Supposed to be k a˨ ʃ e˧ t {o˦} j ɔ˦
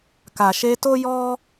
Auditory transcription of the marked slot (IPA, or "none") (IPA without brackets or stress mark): o˦